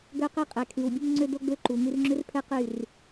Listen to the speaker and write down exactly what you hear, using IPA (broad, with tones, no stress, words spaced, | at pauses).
ɡœ˦qɛ˦ qʼɛ˨kʰy˨wbʲu˦ŋ ŋ͡ǀø˦do˦ɡ͡bø˦ ǃu˨ŋy˦r ŋ͡ǁø˦rpʰɛ˦qy˦˨r